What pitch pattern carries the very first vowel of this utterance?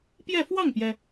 falling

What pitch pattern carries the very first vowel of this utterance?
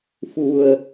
low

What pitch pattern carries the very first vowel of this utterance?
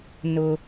high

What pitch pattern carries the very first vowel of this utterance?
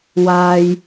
low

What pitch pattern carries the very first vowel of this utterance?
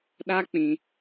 high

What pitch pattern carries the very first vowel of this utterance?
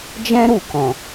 high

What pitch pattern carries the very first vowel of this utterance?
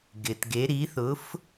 low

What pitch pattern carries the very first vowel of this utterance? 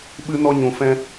high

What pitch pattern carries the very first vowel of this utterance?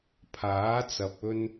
rising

